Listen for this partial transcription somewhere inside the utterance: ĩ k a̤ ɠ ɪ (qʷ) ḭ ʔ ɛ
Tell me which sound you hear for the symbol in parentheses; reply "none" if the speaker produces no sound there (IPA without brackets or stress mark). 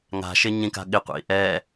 qʷ